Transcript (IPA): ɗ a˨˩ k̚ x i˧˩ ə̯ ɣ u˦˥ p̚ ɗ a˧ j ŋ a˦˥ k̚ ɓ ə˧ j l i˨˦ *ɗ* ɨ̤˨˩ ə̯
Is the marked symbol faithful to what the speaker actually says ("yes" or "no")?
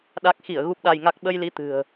no